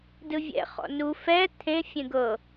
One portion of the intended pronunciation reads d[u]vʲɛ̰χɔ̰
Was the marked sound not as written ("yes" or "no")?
yes